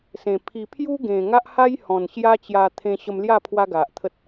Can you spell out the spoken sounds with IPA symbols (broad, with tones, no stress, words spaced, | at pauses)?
sẽ˨˩ pʰi˨˩ pʰju˦ɡẽ˨˩ ŋa˦ʔha˦jhɔ̃˨˩n ɕja˦t͡ɕja˧ t̪ʰẽ˧ɕə˧mlja˥˧ pʰwa˦ɡa˨ʔt̪ʰə˦t̚